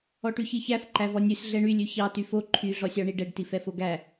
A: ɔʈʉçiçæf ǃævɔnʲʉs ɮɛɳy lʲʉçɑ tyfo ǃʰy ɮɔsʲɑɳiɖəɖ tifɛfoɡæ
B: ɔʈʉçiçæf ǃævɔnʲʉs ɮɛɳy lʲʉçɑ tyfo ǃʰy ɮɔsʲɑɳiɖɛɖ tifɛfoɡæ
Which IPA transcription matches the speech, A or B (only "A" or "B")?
B